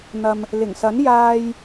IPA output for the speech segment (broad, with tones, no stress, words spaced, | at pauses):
n̪ɐ˨m | lɪ˨˩ŋsɐ˨˥n jaː˧j